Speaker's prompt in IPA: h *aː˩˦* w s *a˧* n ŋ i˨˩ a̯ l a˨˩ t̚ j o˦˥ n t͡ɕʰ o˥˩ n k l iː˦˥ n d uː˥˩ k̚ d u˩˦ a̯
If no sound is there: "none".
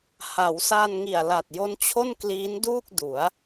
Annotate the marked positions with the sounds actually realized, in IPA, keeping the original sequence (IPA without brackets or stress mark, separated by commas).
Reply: a˩˦, a˧